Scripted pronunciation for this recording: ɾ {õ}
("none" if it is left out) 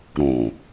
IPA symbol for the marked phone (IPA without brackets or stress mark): õ